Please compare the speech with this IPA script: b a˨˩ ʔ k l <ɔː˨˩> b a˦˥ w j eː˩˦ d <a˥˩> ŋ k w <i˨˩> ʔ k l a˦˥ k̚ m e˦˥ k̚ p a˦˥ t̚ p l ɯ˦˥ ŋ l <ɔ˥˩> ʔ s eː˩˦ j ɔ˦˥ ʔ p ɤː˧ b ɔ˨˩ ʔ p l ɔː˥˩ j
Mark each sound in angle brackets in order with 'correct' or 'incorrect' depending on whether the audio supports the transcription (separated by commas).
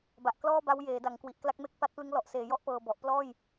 incorrect, incorrect, correct, incorrect